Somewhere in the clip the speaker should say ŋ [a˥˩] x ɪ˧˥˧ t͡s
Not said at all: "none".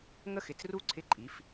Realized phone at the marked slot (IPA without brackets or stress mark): ə˥˩